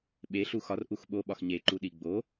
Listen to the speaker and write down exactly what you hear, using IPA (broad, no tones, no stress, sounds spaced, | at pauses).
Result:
ɓ e ɬ u x ɒ r ʔ u x ɓ o ɓ ɒ x ɲ e ǃ u ɗ i ɡ͡b o